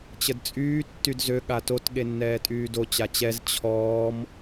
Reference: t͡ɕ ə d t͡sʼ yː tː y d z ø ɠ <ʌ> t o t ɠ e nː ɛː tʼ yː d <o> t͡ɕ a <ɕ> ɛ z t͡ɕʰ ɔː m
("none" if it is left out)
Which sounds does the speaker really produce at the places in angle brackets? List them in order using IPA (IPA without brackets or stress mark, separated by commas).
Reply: a, o, t͡ɕ